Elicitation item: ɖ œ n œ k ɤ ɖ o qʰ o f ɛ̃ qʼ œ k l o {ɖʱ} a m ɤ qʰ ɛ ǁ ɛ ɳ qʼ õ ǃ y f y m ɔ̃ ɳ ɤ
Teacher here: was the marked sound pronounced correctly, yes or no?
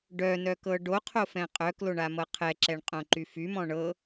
no